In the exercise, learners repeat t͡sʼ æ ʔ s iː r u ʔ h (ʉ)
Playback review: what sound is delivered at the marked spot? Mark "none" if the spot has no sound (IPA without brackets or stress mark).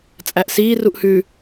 ʉ